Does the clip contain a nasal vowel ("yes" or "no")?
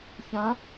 yes